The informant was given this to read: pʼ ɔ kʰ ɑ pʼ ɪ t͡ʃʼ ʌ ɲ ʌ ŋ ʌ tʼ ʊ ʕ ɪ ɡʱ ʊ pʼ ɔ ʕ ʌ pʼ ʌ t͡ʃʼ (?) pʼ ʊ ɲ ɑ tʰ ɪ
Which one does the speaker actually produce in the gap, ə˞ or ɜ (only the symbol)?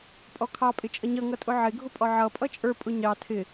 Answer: ə˞